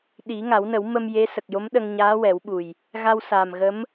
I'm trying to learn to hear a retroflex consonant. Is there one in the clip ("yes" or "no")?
no